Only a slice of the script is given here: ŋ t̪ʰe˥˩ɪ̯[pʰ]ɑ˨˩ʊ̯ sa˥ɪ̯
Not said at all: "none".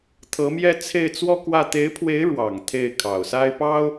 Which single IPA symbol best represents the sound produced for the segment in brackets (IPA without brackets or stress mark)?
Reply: kʰ